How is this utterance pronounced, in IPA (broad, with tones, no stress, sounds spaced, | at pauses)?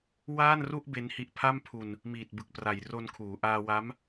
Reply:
w aː˥˩ n r u˥˩ ʔ b e˦˥ n h i˦˥ ʔ pʰ a˥˩ m pʰ u˧ n | m iː˨˩ t̚ b ɯ˨˩ k̚ p r a˨˩ j r o˧ n kʰ uː˩˦ ʔ aː˧ w a˦˥ m